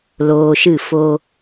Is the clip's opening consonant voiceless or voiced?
voiced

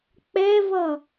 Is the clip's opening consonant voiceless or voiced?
voiceless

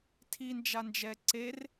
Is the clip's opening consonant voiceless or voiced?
voiceless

